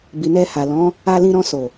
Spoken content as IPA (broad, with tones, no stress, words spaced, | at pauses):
bi˨nɛ˧ha˨lɔ̃˨˦ | a˧lĩ˧ɾɔ̃˧so˨